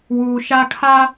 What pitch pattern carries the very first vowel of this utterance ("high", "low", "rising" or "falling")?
low